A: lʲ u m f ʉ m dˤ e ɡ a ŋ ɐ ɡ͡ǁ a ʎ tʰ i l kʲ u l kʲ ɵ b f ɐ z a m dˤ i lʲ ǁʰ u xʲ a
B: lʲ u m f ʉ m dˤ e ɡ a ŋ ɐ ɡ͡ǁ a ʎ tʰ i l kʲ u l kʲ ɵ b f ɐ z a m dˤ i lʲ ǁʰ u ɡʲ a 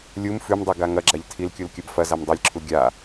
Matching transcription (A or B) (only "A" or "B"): B